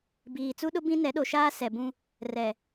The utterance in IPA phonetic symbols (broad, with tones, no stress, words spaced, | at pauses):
biː˨t͡su˦ɗʊ˦ bĩ˦nɛ˨˦ɗo˨ʃaː˦ sɛ˨bũ˦ | rɛ˨